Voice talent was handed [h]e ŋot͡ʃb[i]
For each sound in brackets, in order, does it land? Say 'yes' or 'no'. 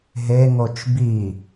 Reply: no, yes

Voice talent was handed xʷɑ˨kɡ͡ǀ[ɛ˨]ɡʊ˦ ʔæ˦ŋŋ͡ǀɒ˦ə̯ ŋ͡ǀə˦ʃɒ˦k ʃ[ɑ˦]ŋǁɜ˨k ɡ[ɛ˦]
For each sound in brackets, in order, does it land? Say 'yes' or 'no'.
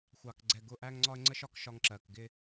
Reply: yes, no, no

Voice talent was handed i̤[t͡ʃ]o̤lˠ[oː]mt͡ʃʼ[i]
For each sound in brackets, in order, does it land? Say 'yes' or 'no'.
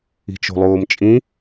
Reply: yes, yes, no

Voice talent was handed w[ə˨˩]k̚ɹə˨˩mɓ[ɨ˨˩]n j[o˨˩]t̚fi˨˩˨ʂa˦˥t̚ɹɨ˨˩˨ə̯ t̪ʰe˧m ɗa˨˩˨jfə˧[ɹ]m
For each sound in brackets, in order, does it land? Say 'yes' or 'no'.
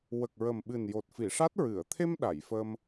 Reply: yes, yes, yes, no

